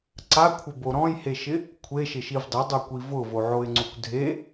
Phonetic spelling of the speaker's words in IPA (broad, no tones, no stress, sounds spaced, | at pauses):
ǀ a kʷʰ ɪ b o ɾ ɔ̃ j h e ʃ ɪ | kʷʰ e ʃ ɪ ʃ i v dˤ ɪ dˤ o kʷ i v ʊ v o ʕ o ɪ̯ ŋ͡ǀ u kʷ dʱ e